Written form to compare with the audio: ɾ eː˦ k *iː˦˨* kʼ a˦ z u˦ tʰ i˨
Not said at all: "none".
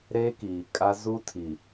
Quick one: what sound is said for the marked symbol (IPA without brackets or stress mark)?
iː˨